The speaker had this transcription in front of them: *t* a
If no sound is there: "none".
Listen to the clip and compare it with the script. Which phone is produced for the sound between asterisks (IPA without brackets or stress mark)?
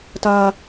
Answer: t